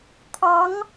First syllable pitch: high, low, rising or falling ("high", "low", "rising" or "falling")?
rising